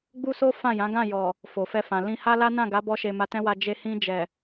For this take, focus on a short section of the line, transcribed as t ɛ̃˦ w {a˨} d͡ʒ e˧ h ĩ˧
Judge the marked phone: incorrect: a˧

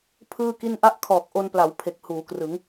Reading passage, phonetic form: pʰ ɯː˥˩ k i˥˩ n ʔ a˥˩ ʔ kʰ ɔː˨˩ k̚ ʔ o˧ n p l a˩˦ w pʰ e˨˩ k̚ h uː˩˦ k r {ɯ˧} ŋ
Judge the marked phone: incorrect: ɯ˩˦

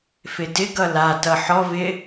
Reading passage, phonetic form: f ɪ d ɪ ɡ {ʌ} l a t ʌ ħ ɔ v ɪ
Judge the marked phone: correct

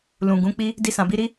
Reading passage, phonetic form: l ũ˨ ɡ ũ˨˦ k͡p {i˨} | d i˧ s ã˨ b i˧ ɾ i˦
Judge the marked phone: incorrect: i˦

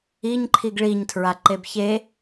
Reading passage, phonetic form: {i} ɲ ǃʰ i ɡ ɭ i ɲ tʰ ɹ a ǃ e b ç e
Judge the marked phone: correct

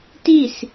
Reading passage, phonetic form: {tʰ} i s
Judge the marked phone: incorrect: t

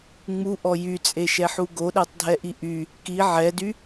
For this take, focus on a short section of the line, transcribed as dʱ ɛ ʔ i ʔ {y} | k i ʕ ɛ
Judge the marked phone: correct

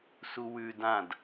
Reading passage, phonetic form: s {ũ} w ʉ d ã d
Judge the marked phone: incorrect: u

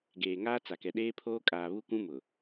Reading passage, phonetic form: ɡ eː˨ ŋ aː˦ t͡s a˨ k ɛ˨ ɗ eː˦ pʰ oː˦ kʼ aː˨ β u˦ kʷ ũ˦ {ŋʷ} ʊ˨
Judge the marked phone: incorrect: m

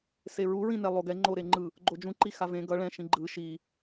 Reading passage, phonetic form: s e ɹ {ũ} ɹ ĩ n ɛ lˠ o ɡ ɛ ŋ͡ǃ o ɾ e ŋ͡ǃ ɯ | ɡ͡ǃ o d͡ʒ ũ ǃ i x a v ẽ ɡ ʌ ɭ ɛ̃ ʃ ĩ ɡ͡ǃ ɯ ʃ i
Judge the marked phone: incorrect: u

